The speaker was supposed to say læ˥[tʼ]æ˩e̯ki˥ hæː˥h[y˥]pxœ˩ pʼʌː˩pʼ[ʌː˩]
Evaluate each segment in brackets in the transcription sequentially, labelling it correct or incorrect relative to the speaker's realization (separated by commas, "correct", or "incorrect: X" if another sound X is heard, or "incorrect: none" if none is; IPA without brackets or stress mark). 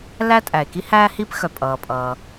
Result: correct, incorrect: i˥, correct